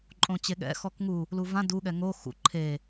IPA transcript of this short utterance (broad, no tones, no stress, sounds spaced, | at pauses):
ǃʼ õ t͡ɕ e ɠ ɛ̰ x ɔ k ŋ u | l u v ã d u ɠ ɛ ŋ o x ṵ ǃʰ e